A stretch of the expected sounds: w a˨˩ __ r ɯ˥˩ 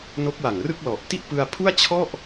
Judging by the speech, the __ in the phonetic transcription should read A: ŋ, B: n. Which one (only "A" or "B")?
A